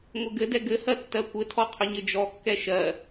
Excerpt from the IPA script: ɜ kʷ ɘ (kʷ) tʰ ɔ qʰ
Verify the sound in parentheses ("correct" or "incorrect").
incorrect